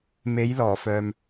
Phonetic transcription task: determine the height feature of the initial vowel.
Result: mid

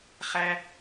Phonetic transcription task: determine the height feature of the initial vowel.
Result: low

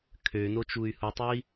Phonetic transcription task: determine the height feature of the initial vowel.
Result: mid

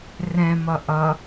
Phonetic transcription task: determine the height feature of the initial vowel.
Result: mid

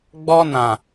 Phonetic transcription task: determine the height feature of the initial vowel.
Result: mid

